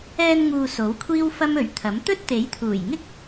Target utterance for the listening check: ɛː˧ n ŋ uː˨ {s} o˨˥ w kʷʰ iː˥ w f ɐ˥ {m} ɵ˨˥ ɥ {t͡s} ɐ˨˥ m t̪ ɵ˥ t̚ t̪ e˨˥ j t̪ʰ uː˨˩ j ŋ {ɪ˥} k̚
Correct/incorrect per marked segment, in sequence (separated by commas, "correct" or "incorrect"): correct, correct, incorrect, correct